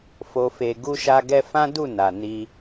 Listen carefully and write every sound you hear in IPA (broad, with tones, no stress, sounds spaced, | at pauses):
f o˧ f e˧ ɡ u˦ ʃ a˦ ɡ ɛ˦ f ã˦ d u˦˨ n a˨ n i˧